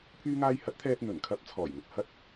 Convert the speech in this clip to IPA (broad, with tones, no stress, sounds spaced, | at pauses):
pʰ yː˥ ŋ aː˥ j h ɐ˨˥ t̚ t̪ʰ ɛː˧ t̚ n̪ ɵ˨˩ n kʰ ɐ˨˥ p̚ t͡sʰ ɔː˨˩ j ŋ ʊ˨ k̚ h ɐ˥ t̚